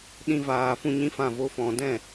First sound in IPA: ɗ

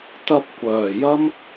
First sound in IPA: t̪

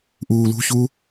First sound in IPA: ʔ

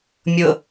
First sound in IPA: mʲ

